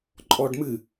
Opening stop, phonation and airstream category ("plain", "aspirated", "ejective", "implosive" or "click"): click